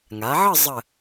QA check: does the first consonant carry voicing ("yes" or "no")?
yes